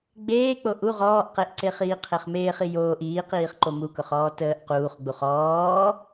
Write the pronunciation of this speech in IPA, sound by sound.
ɡ͡b eː k͡p o ʔ u ʁ ɔː ʔ q e ʔ ǀ e χ iː qʰ e χ m eː χ i j oː ʔ iː q iː χ ǃ o m u k ʊ χ ɔː t əː ʔ q uː χ ɡ͡b u χ ɔː

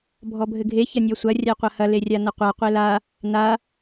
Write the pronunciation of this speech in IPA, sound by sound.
bʱ ɔ bʱ ɘ ɡʱ e ç ɐ nʲ ɔ sʷ ɐ rʲ a qʷ ɐ h ɐ l e rʲ a n ɐ qʷ a qʷ e l a | n a

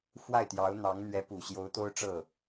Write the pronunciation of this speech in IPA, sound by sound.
f w a˥˩ ɪ̯ t̪ j ɑ˧˥ ʊ̯ n̪ ɑ˧˥ ŋ n̪ ɥ ɛ˧˥ p u˨˩ ɕ j o˧˥ ʊ̯ t̪ o˥ ʊ̯ ʈ͡ʂ ɤ˥˩

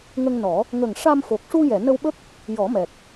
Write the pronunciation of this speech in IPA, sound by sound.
ŋ ə˧ ŋ n ɔ˨˩˦ | ŋ ə˨˩ ŋ ʂ a˧ m f o˨˩ k̚ ʂ u˧ j ɛ˨˩˨ n ə˧ w ɓ ə˦˥ k̚ | j ɔ˨˩˦ m ɛ˨˩ k̚

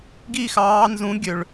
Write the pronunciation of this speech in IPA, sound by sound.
ɡ i˥˧ x ɑː˨˦ n z ũ˨˦ ɡʲ ø˩ ɭ

